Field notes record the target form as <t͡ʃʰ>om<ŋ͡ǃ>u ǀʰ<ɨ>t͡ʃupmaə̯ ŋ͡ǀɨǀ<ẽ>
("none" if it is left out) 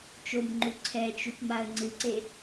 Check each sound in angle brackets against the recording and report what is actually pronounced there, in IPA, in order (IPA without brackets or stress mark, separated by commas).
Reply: t͡ʃ, ŋ͡ǃ, ɛ, e